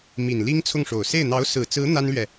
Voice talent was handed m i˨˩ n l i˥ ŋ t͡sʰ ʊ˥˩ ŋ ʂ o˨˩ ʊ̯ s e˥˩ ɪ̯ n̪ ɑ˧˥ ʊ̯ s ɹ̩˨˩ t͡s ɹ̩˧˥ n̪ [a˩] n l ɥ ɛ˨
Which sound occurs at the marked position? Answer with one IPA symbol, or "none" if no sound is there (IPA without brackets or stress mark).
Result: a˥